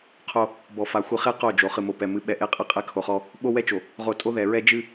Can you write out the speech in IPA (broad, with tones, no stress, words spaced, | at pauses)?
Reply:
qʰo˦ | bɔ˨fa˨ xʷɨ˨χe˦ qo˦˨d͡ʒo˨ χɨ˨mo˨pɛ˨ mɨ˨˦ɓɛ˨ʔe˦qʼɨ˦ qʼɛ˦kʰo˨χɔ˦ | ɓo˦ wɛ˦t͡ʃo˨ | ʁo˨ tʼo˦ðɛ˨ɹɛ˦ d͡ʒɨ˦